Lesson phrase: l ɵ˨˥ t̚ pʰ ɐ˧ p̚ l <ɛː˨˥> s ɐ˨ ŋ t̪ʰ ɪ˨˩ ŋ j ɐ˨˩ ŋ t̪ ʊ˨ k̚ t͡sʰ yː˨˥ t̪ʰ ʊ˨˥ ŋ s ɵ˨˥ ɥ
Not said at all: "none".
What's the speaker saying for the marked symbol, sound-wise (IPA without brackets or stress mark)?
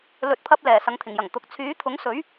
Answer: ɛː˨˩